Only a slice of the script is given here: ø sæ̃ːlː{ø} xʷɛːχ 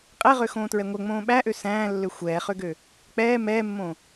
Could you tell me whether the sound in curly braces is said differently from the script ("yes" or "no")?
no